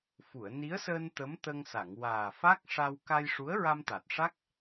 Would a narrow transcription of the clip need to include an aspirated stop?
no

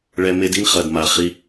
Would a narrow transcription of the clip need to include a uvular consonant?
yes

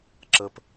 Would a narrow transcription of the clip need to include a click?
yes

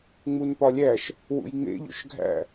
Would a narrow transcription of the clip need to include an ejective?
no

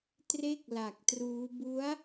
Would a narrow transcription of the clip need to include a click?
no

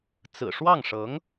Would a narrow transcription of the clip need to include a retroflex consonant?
yes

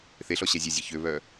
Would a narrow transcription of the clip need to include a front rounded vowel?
yes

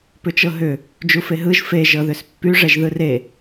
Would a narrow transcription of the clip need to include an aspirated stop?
no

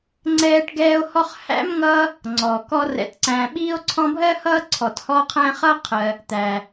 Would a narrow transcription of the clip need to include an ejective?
no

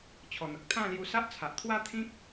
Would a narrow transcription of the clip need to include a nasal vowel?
yes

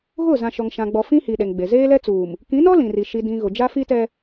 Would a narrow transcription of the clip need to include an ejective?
no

